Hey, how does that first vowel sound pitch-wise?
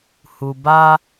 low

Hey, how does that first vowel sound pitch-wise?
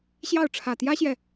falling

